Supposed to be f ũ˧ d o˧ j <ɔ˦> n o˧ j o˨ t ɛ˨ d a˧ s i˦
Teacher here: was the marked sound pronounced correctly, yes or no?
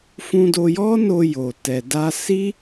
yes